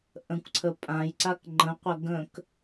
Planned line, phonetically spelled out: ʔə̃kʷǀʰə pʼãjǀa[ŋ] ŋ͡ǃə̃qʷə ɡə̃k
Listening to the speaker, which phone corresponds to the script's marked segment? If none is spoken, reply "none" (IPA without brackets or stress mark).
k